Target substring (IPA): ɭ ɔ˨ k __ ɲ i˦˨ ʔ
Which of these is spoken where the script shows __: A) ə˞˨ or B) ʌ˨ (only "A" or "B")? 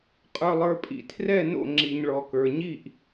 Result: A